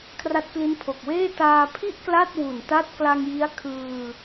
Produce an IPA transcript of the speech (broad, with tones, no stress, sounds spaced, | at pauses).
kʰ r a˦˥ t̚ k l i˦˥ n pʰ o˨˩ k̚ w eː˥˩ t aː˧ pʰ i˥˩ ʔ k l a˥˩ t̚ w u˨˩ n t a˦˥ t̚ k l a˧ ŋ j i˦˥ a̯ kʰ ɯː˧